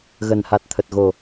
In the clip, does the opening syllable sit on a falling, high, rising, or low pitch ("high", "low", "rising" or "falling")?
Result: low